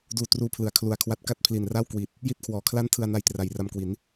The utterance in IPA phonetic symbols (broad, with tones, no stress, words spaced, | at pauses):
duː˧truː˦˥ pʰlɯ˨˩a̯kʰlu˨˩a̯kʰwa˦˥t̚ ka˥˩t̚pʰli˨˩nra˥˩w kwi˨˩t̚ | ji˥˩t̚kʰwɔː˨˩kʰla˥˩n tʰɯ˧a̯na˧jtra˨˩j ra˧mkwi˩˦n